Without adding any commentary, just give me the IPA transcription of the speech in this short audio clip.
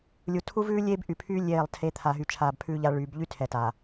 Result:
lʲu˨tʰu˦vʉː˦ lʲeː˦bʔy˨pʰyː˦ lʲeː˦˨lˠtʰe˦ t̪ʰaː˨ɦy˨t͡ʃʰaː˨b pʰʉː˦ʎa˦ɭyː˨˦b ʎy˦tʰɛ˨ ta˨

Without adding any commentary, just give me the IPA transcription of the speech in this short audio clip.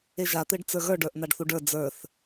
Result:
eʒat̪eɖ t͡sə˞ɣə˞ɖə˞ʔ n̪aɖθuɖə˞ d͡zə˞θ

